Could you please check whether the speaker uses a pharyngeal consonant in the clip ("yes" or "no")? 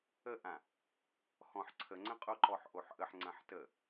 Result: yes